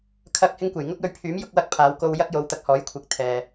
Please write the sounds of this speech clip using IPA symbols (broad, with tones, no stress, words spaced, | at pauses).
kʰɐ˨k̚ hɪ˥ŋkʷe˨˩j ŋʊ˥k̚jɵ˨˧ɥpʰyː˨˥m jʊ˧k̚ wɐ˥k̚pʰaː˨˧w ko˧wjɐ˥k̚ jo˨˧wt̪ɐ˧k̚hɔː˨˥jkʷʰɪ˨k̚ t̪ʰɛː˨